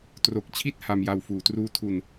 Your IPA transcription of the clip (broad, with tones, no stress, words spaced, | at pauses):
tro˨˩k̚t͡ɕʰi˦˥t̚ ha˧mja˧w fuː˩˦truː˦˥ tʰu˧n